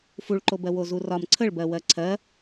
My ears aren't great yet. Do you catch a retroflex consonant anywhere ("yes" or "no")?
yes